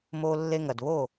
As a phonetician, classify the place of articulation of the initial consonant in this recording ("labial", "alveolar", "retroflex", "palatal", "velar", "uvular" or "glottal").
labial